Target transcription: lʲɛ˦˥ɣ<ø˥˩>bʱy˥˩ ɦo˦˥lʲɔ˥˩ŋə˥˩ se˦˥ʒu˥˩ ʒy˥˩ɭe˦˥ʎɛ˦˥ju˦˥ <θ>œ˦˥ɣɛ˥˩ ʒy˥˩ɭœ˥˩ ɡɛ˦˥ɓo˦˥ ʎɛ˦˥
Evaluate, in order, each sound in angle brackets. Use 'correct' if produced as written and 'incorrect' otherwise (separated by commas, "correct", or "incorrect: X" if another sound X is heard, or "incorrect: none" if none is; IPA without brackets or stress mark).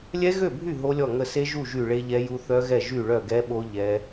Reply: correct, correct